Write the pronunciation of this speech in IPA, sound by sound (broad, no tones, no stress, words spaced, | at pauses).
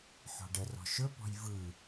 ħɔ̤ɖərɔ̤ ʃɵpɔ̤j vɯ